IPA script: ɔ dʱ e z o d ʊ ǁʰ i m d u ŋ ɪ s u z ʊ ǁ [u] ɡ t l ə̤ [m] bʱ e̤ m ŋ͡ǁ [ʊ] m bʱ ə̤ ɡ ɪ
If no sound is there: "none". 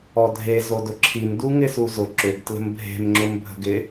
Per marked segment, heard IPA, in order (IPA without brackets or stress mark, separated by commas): ʏ, m, ʊ